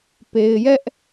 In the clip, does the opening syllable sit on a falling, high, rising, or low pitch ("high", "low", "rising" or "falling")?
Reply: low